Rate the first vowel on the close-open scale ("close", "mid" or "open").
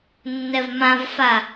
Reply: mid